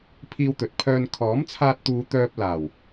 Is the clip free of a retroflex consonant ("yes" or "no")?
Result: yes